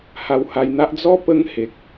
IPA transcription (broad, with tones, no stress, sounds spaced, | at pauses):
h a˧ w h a˧ j n̪ a˦ ʔ d͡z ɔ˦ p ə˦ ŋ h e˨ k̚